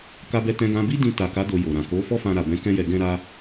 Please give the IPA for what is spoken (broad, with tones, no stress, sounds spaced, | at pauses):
k a˦ b ɛ˦ t ɛ̃˦ ɡ ã˦ b i˦ d ĩ˧ t a˨ k a˨˦ d o˧ j o˨ ɾ ã˨ k o˨˦ f ɔ˦ f ã˧ ɾ a˨ b ɛ̃˨˦ k ɛ̃˦ j ɛ˧ ɡ ɛ̃˧ ɾ a˧